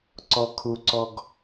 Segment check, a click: present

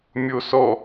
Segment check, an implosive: absent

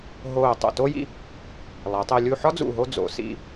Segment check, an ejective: absent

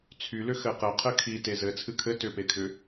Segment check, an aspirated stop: present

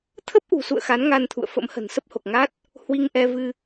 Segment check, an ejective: absent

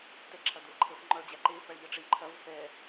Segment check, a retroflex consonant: present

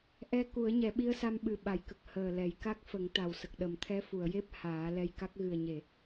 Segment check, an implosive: present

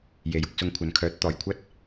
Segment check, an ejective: absent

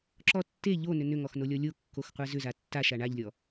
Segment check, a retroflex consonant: present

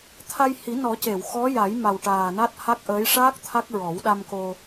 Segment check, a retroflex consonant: present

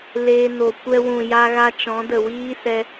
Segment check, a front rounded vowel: absent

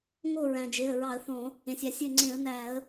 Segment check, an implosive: absent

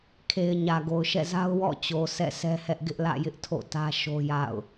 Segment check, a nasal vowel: absent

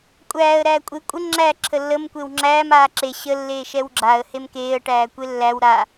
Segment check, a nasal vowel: absent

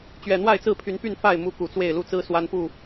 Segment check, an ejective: absent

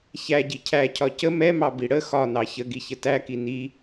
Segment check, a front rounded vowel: absent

